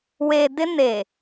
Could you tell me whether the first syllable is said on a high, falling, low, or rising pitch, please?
low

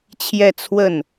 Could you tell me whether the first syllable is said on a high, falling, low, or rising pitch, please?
falling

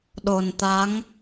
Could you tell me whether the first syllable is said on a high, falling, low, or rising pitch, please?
low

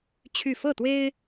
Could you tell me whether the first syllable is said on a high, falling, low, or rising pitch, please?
falling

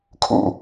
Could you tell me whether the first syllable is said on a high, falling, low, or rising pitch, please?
falling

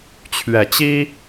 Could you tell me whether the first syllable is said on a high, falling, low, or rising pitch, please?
low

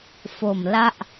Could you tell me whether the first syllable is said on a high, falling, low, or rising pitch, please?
low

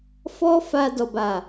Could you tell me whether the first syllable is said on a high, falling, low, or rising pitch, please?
high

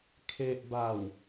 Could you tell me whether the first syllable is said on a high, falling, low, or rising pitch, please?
low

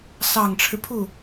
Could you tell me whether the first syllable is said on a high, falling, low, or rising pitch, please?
low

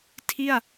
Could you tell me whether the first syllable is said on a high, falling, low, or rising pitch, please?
falling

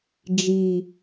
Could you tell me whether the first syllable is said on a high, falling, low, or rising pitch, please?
low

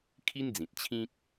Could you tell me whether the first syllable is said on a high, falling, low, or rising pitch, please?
high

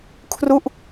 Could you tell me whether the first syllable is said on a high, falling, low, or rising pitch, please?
falling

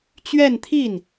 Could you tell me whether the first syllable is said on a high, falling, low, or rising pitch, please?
falling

